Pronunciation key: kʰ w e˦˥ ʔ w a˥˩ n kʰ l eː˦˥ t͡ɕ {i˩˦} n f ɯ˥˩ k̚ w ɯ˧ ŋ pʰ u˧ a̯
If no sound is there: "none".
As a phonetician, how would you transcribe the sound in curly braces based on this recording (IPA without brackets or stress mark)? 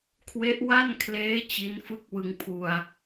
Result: i˦˥